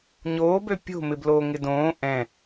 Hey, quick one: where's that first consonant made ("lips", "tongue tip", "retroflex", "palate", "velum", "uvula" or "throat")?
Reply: palate